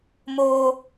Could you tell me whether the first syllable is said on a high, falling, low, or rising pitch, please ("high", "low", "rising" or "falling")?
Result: high